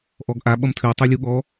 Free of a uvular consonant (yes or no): yes